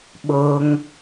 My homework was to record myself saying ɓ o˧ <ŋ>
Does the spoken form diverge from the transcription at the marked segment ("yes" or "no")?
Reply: no